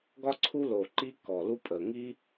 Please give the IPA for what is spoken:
ɡ ɒ˥ ǀʰ u˥ l o˨˩ ǃ i˥ k ɔ˨˩ l u˥ pʼ ə˨˩ ŋ i˥

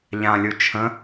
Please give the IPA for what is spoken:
ʎ ã lʲ u t͡ʃʰ ə̃

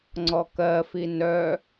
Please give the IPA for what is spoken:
ŋ͡ǀ ɔ k ɜ f i n œ

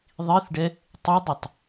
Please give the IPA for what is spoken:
ðˤ i θ ɖ ɛ | tˤ ɪ dˤ ɪ tˤ

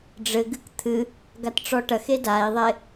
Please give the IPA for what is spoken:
ɖ͡ʐ ɘ ɡ ɨ k t̪ʰ ɨ | ɡ a t ʈ͡ʂ ɔ ʈ ɐ x e d a i̯ ðˤ e

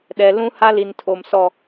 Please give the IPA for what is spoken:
ɗ ɛ˨ l ũ˦ h a˦ l i˨ n tʰ o˨ m s ɔ˦˨

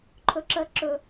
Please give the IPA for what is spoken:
ǃʰ ɵ ǁ ɜ ǁ ɵ

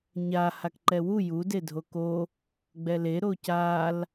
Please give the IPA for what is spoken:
ɲ a h a k ǃ ɛ w u j u d e dʱ o k o | ɡ͡b ɛ l e ɾ o c a l

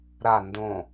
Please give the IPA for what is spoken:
ɾ a n d õ

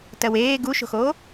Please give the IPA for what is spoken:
t ɜ w eː ɡ u ʃ o̤ x oː

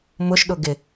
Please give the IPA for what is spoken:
m ʊ ʃ ɗ ʊ ɡ ɪ

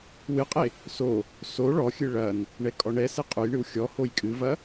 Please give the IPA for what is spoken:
w ɨ qʼ e | s o | s o ɭ ɔ xʲ ɨ ɭ ɐ n | ɳ ɛ kʼ ɔ ɳ ɛ s ɛ qʼ u j ɳ ɨ w xʲ ɔ h o j kʼ ɨ v ɐ

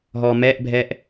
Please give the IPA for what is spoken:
ɦ ɔ m ɛ ʔ bʱ ɛ ʔ

